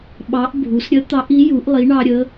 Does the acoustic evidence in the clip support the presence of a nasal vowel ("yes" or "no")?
no